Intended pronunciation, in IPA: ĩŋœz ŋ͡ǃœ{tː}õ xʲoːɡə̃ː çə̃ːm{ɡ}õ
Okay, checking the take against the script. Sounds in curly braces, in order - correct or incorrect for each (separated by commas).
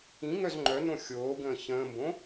incorrect, incorrect